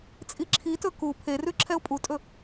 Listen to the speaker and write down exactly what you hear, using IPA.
t͡sʼiǁʰitɵ ku pʰerʉ ǁʰɛʊ̯pʼutʼɵ

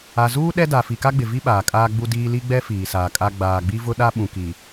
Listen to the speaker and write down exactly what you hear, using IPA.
a˨zuː˦ ɗɛ˦da˨ fi˨ka˦ɡ͡bɪ˨vi˦ ɓaː˨kʼaː˦ ɡ͡bu˦diː˦ li˦ɡ͡bɛ˦ fiː˨saː˨kʼa˦ ɡ͡baː˨ɡ͡bi˦vʊ˦ ɗa˦ɓũ˨ki˨

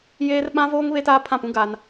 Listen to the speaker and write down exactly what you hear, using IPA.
jeː˦rɓã˦voː˦ŋ βe˦taː˦pʰã˦˨pũ˦ ɡa˦n

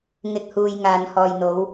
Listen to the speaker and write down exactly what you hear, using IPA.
ŋɪ˨k̚huː˨j ŋaː˨nhɔː˨jn̪o˨˧w

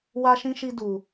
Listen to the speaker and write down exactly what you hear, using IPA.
wa˦ʃĩ˦ʃi˦du˧

